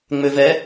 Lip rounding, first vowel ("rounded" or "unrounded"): rounded